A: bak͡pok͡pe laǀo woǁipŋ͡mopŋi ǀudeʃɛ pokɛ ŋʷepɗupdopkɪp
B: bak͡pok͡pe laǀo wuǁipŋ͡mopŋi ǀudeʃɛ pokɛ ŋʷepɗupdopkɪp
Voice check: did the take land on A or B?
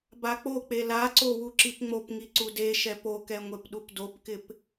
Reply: B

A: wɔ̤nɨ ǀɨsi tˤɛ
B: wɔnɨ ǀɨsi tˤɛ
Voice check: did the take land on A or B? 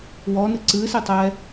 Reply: B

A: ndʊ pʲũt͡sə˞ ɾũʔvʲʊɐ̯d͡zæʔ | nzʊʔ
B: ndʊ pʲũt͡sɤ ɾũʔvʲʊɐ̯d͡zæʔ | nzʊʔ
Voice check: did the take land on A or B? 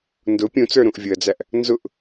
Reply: A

